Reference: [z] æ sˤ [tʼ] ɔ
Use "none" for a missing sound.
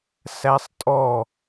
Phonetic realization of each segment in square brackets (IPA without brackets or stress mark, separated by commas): s, tʼ